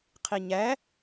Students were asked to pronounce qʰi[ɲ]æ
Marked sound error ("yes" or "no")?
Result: no